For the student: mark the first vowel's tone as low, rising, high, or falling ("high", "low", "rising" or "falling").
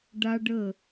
high